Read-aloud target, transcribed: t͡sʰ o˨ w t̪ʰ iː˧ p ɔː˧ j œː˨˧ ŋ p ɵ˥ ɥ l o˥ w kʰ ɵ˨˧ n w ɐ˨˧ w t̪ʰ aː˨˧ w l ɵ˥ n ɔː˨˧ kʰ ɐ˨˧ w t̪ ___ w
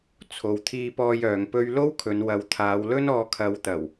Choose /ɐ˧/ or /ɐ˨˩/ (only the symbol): ɐ˨˩